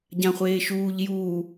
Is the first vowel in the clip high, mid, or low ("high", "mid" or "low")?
low